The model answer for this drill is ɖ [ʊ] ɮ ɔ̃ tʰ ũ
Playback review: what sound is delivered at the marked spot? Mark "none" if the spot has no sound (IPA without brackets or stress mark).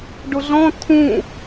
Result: ʊ